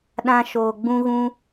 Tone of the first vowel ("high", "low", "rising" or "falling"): high